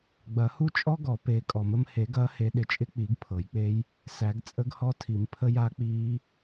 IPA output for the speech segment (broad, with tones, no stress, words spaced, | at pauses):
ɡ͡bɐ˨˩˦hu˦˥t͡ʃʼɔ˦˥ ɡɔ˨˩˦ peː˨˦kʼɔ˨˩˦mə˨˦m he˨˩˦ɡɐː˨˦ he˨˦ɗɪ˨˦t͡ʃʼɪ˦˥k͡pi˨˩˦ɡ pʰɤ˨˩˦jk͡pe˦˥j | sæ˨˩˦ɡt͡sʼə˦˥ɡhɔ˦˥ tʰi˨˩˦mpʰə˦˥ja˦˥k͡piː˦˥